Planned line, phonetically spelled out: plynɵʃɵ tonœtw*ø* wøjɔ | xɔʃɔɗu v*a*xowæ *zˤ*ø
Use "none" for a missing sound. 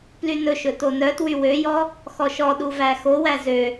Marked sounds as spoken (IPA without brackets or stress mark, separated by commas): y, æ, z